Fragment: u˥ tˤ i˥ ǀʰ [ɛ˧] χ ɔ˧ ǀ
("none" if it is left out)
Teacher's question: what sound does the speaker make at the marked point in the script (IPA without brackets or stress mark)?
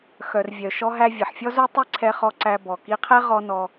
ɛ˧